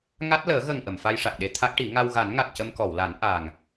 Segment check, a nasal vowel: absent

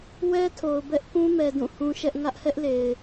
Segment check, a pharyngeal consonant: absent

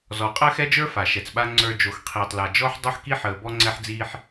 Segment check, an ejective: present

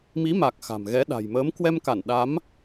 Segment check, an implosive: present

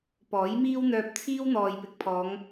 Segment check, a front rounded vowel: present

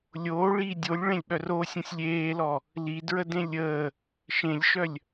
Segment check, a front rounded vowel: present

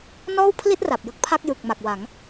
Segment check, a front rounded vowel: absent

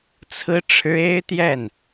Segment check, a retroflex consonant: present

